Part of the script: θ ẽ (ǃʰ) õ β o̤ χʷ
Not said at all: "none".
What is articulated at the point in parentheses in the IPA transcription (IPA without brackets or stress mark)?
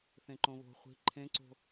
ǃ